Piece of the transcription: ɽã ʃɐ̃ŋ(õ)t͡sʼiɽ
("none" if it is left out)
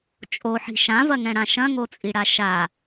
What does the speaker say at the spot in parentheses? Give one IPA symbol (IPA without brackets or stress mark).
o